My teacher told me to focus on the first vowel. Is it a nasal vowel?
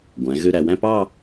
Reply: yes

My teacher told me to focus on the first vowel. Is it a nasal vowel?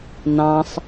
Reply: yes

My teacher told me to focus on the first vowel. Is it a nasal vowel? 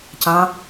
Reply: yes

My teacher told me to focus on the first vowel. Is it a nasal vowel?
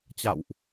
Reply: no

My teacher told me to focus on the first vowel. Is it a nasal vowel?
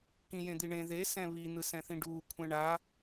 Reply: yes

